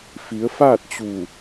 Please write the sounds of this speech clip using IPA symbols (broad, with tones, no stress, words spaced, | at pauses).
fi˩˧ə̯faː˥˨t̚t͡ɕuː˧˩